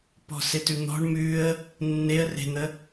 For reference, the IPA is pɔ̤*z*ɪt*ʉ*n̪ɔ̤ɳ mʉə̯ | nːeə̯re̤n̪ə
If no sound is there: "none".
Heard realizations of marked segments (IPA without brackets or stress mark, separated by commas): s, ʉ